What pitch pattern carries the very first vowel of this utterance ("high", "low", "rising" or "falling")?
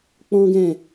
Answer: high